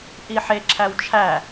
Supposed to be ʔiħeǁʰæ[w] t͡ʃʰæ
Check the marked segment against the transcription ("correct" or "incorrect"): correct